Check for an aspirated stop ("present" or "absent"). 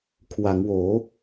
present